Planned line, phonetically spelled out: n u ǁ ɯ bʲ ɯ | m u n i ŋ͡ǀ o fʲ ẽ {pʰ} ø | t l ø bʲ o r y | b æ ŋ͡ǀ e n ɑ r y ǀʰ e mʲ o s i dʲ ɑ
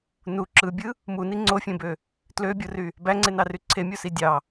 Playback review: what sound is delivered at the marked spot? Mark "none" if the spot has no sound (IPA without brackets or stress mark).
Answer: b